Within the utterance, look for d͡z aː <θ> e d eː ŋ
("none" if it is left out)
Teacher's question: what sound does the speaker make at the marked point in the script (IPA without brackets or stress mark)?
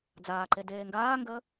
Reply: ǃ